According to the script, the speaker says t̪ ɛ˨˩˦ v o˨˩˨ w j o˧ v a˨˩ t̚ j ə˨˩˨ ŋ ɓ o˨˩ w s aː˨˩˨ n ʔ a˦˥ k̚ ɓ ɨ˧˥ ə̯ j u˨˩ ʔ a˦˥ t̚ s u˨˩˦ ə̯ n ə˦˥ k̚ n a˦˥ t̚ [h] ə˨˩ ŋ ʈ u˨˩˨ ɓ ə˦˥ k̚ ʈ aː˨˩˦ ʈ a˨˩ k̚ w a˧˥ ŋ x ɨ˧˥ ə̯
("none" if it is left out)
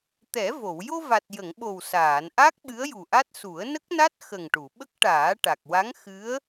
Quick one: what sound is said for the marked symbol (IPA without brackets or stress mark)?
x